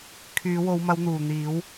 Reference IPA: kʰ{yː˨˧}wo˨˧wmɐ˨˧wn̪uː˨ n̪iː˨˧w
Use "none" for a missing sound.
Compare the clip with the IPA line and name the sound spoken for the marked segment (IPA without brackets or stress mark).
yː˨˧